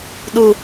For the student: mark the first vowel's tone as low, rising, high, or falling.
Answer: low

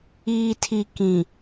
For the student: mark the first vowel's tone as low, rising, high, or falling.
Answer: low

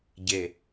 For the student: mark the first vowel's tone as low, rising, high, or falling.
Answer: low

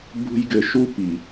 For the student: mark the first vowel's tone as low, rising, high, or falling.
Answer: high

